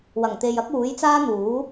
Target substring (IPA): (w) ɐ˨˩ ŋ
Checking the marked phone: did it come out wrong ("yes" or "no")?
no